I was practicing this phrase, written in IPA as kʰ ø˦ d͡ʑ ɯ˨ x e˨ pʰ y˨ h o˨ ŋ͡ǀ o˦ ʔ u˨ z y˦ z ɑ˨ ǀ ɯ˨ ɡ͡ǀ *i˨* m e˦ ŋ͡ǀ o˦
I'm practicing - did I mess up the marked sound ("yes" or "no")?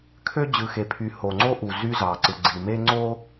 no